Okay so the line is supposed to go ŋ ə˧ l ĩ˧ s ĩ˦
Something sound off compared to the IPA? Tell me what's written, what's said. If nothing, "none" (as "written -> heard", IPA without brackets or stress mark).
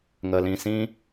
none